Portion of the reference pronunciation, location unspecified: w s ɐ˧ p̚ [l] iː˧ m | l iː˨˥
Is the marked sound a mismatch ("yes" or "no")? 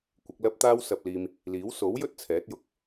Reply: no